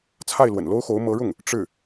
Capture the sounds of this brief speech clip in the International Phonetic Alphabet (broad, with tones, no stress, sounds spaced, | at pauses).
t͡sʰ a˥˩ ɪ̯ l w ə̰˨˩ n l o˥ ʊ̯ x o˧˥ ʊ̯ m ɤ˧˥ ɻ ʊ˥˩ ŋ | ʈ͡ʂ ɻ̩˥˩